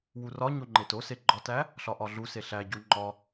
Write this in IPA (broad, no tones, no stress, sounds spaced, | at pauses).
w u r ɒ ɲ o ŋ͡ǃ e t o s e ɡ͡ǃ ɒ t æ | ɬ ɒ ʔ ɒ ɮ u s e ɬ æ ɟ u ŋ͡ǃ ɒ